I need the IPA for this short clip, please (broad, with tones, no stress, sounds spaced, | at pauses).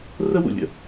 r ə˥ w ṵ˩ lʲ ə̰˥